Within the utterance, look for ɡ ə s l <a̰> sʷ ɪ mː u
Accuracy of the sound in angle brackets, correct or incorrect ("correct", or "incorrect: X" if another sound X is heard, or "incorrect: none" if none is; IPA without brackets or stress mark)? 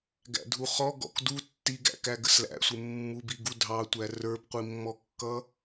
incorrect: æ̰